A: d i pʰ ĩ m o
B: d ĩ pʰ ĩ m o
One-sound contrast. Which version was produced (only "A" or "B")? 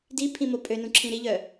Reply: A